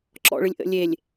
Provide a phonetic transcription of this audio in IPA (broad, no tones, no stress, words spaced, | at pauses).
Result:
ǁɔ̰ɭɨlʲ ʔə̰lʲelʲ